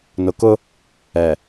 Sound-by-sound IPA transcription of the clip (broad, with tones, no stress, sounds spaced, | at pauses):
n ʊ˨ k ʊ˦ | ɛ˨